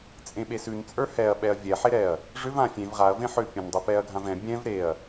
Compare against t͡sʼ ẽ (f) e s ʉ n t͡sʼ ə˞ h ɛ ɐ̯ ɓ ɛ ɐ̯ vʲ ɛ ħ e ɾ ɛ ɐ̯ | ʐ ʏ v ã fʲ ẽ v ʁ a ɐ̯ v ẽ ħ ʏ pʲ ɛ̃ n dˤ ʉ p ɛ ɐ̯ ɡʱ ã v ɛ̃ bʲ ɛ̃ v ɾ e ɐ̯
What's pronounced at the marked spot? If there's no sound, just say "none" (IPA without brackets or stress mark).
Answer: ɓ